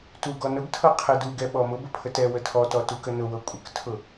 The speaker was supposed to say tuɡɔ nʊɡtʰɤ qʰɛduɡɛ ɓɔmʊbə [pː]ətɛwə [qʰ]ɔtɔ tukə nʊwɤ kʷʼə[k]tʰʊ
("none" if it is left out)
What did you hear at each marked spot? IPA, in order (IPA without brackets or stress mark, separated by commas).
pʰ, tʰ, k